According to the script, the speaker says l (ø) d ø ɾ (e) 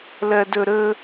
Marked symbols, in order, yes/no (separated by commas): no, no